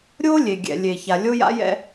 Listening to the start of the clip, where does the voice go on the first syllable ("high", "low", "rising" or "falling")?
high